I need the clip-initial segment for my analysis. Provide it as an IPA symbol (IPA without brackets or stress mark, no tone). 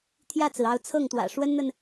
t̪ʰ